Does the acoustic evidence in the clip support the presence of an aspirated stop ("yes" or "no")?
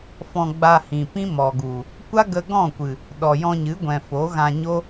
no